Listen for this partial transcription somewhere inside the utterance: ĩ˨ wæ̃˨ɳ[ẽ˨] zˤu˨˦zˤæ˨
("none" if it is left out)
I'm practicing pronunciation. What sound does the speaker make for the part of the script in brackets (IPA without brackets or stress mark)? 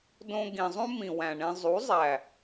ẽ˧